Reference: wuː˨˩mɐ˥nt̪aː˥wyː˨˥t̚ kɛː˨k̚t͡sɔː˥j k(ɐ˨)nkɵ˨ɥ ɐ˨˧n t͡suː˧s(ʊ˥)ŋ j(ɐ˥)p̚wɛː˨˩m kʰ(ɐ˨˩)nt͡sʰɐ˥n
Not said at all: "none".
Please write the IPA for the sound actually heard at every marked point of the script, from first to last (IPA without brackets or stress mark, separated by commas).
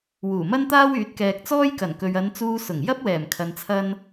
ɐ˨˩, ʊ˨˩, ɐ˥, ɐ˧